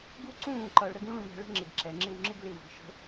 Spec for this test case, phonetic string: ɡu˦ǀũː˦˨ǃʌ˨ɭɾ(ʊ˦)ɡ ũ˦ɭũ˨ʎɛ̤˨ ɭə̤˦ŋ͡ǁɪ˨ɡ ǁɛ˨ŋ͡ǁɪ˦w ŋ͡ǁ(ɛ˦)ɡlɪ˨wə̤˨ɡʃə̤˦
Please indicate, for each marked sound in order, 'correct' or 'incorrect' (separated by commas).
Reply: incorrect, incorrect